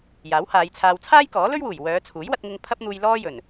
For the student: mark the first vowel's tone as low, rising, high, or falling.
rising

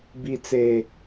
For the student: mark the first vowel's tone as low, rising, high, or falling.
low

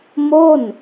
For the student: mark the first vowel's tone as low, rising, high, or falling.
falling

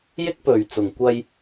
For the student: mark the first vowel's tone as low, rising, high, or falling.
high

